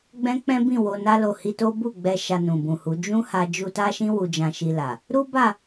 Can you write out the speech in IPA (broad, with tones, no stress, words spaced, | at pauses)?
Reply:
ɡ͡bɛ̃˦k͡pɛ̃˦bĩ˦˨ wo˧na˦ lo˧hi˧to˦ bu˦˨ɡ͡bɛ˧ ʃa˧nũ˨bũ˨hu˨˦ d͡ʒũ˦ ha˧ d͡ʒu˧ta˦ʃĩ˦ wu˧d͡ʒã˧ʃi˧la˨ | ɾu˦ba˦˨